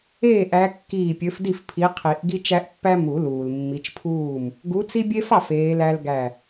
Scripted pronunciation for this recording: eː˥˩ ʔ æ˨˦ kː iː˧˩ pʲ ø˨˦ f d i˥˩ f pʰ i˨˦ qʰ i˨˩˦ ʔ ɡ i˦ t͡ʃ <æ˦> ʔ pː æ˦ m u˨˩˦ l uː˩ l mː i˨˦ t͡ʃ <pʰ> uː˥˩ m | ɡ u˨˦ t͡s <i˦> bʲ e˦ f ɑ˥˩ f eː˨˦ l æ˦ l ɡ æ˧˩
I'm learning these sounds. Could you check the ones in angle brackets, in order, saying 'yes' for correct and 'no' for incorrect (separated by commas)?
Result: yes, yes, yes